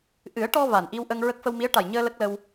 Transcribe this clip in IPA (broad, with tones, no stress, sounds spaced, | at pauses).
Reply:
ʔ ɨ˨˩˦ ə̯ ʈ ɔ˧ v aː˨˩ n ʔ i˧ w ʔ ə˧ ŋ ɹ ə˦˥ k̚ f ə˧ w m i˧˥ ə̯ ʈ a˨˩ j ɲ əː˧ l ə˦˥ k̚ l ə˧ w